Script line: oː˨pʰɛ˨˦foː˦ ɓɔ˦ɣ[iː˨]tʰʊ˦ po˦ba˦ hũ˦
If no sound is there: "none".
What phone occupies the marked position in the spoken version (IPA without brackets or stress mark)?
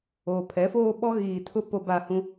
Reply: iː˨